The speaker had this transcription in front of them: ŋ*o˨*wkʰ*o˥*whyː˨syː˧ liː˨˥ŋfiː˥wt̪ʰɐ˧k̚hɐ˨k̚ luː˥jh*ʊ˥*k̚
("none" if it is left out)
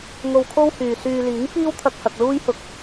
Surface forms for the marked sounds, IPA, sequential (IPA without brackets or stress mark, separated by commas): o˧, o˥, ʊ˧